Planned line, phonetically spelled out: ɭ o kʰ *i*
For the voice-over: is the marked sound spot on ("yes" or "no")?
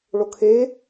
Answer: no